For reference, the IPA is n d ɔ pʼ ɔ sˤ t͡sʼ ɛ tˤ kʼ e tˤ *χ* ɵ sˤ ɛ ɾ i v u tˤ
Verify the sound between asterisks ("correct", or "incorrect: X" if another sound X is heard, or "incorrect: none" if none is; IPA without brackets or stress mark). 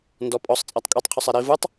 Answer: incorrect: qʰ